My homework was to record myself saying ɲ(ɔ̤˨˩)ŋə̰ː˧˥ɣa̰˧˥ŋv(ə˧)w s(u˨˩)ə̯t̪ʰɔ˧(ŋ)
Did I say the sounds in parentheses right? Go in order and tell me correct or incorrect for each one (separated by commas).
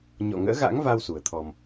incorrect, incorrect, correct, incorrect